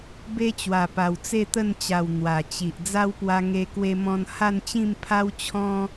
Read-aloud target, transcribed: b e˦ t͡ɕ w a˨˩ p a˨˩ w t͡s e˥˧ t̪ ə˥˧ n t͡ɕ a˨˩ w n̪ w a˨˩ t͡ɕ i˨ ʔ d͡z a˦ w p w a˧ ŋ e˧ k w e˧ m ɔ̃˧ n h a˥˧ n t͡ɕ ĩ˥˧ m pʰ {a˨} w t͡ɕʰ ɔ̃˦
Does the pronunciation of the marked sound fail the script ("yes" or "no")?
yes